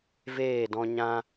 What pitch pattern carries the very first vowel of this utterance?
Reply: falling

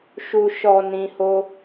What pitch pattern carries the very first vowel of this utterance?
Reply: low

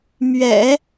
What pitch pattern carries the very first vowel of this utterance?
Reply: low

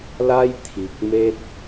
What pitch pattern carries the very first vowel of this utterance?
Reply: high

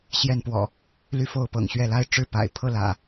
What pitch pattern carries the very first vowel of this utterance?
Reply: falling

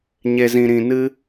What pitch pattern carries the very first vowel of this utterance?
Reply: low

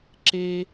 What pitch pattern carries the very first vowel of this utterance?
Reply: high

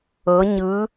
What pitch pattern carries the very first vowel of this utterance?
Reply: rising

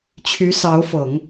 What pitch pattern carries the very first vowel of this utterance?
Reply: rising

